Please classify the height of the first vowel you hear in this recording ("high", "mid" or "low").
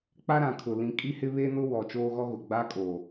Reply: low